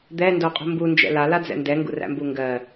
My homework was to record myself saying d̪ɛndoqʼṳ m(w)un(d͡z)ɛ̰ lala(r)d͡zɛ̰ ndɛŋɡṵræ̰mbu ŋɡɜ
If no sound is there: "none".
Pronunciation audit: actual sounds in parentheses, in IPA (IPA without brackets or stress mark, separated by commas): b, d͡ʒ, none